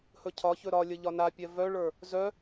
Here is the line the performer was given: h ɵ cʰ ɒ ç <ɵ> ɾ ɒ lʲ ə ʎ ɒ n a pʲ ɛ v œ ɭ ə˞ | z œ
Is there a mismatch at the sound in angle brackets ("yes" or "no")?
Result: no